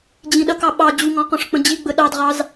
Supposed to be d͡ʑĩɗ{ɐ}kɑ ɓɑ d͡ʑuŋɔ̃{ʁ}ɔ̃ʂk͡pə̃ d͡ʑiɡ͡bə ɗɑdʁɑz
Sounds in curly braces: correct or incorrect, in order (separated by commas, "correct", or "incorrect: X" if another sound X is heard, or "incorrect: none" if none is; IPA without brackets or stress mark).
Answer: correct, incorrect: q